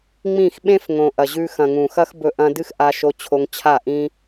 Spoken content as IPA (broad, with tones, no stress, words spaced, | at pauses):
ŋ͡mĩ˦˨x ɓẽ˦fŋõ˨ ʔɐ˨ʑʉ˧ xɐ̃˨ŋũ˨xɐ˦xbɵ˧ ʔɐ̃˦ dɨ˦xʔa˧ʃo˧t͡ɕʰo˧ŋ t͡ɕʰa˦˨ʔĩ˦